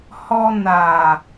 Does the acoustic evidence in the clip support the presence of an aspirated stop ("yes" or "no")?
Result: no